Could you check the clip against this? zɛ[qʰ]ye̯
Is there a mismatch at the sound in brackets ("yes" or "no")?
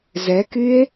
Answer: yes